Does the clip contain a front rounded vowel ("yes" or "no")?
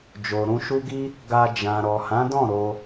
no